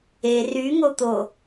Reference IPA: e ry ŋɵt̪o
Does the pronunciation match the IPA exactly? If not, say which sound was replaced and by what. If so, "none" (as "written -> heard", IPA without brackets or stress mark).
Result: ɵ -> o